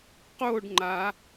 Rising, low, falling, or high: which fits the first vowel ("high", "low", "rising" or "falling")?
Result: falling